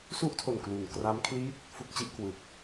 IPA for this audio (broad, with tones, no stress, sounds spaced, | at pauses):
s u˥˩ ʔ tʰ o˨˩ n k l u˨˩ n k r a˦˥ m kʰ l i˥˩ t̚ | f u˥˩ k̚ t͡ɕ i˥˩ ʔ k w ɯ˨˩ k̚